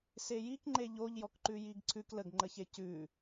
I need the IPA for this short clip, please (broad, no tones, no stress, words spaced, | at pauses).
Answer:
sejikŋ͡ǃe ʎoʎjɔkǃʉ jiɡǀʰʉk ləɡŋ͡ǃəçe cʉ